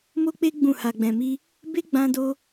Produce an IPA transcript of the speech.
m o˦ k͡p e˦ ɡ͡b ũ˦˨ h a˧ ɡ͡b ɛ̃˧ m i˦ | b e˦ ɡ͡b ã˦ d o˦

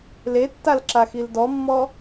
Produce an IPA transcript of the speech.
l e tː a l ǁ a x i l d ɔ mː ɔ

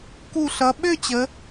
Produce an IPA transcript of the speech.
k u˧˩ ɬ ʌ˩˧ ɓ ø˥˧ t͡ɕ ə˩˧

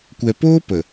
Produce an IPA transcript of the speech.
kʷ ɛ˨ p oː˦ p ə˨

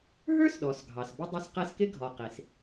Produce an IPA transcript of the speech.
ɦ ə˞˥ s ɗ ɔ˩ s ɡʱ ɑ˩ s b ə˥ dˤ i˦ s q æ˦ s k ɪ˥ ɡʱ ɔ˩ q i˩ s

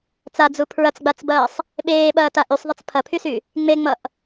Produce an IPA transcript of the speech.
t͡s a d͡z u pʰ ɹ ɐ t͡s ɡ͡b a t͡s b ɐː sˤ | ɓ eː ɓ ɐː t a ʔ y sˤ ðˤ ʌ t͡s pʰ ɐ pʰ y s y | ŋ͡m e ŋ͡m ʌ ʔ

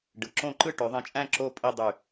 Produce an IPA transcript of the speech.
ɖ ɯ˩˧ ǁ õ˥˧ ǃ ɯ˥˧ ʈ ø˩˧ ðˤ ĩ˧˩ t͡ʃʼ æ̃˥˧ ǁ o˥˧ pʼ i˥˧ dˤ y˧˩

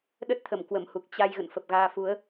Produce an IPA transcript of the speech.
ɗ ə˦˥ t̚ t̪ʰ ə˧˩ m k w ə˧˩ m h u˨˩ k̚ t͡ɕ a˧ j ɣ ə̰˧˨ n f ə˨˩ p̚ ɣ aː˧ f u˨˦ ə̯

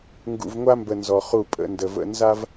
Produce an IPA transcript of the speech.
ŋ ɡ ṵ˨ v ŋʷ a˦ m b ə˨ n z ɔ˨ χ u˦˨ pʼ ə̰˨˦ n d ə˨ v ə̰˦ n z a˦ v

